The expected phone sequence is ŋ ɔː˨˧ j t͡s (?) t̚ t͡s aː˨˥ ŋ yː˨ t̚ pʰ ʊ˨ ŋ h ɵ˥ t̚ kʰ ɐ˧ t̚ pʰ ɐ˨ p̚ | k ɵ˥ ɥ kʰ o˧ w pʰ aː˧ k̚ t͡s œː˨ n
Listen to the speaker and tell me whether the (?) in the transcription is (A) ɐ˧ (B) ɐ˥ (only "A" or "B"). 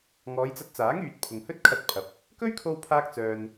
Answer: A